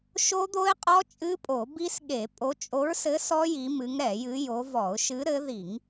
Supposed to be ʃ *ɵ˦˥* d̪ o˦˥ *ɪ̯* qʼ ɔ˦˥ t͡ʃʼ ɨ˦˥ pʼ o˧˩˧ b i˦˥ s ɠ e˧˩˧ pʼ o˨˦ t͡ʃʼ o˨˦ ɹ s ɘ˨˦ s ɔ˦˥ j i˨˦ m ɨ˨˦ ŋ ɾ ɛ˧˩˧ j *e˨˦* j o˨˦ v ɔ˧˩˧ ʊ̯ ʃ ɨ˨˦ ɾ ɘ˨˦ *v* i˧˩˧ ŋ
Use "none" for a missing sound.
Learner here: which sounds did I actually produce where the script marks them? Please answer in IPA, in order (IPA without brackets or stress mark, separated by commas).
o˦˥, ɪ̯, ɨ˨˦, ð